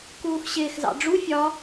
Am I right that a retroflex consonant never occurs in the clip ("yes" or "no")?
no